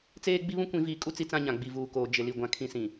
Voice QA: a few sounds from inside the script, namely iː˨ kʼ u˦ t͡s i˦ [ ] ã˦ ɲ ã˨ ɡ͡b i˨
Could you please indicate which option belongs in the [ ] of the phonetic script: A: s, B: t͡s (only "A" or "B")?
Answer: B